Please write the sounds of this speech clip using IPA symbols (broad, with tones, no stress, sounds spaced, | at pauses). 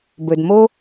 b ɵ˩ d m o˧